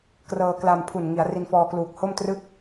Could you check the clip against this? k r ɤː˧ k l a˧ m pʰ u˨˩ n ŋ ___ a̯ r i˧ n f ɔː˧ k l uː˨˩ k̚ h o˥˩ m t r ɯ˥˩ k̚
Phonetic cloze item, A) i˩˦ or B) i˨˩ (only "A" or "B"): A